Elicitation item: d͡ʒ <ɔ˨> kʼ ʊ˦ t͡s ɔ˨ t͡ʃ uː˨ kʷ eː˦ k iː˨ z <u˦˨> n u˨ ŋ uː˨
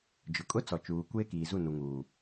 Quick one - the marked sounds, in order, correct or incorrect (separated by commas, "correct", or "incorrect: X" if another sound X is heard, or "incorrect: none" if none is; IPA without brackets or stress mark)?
incorrect: ʊ˨, correct